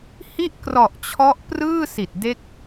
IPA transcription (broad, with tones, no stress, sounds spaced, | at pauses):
h i˥˩ ʔ k r ɔ˨˩ ʔ t͡ɕʰ ɔ˦˥ ʔ p r ɯː˥˩ s i˨˩ t̚ d e˦˥ k̚